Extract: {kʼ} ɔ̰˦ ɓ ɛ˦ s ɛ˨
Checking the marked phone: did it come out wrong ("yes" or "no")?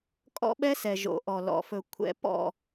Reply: no